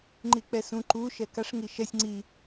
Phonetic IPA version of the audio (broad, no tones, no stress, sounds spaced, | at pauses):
ŋ͡ǃ i k͡p ɛ s ũ ǃ u ʃ ɛ k a ʂ ŋ i ʃ ɛ sʲ ŋ͡ǀ i